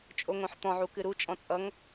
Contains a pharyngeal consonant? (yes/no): yes